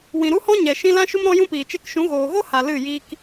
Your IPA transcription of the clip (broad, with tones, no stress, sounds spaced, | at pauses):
w ĩ˨ ɾ u˦ h ɔ̃˦ ɲ ɛ˨ ʃ ĩ˧ l ã˦ ʃ u˦ m ɾ ɔ̃˦ j ũ˦ p iː˨ t͡ʃ e˧ k ʃ ũ˨˦ ɣ oː˨ ɣ o˦ h a˨ l ɨ˦˨ j iː˦ k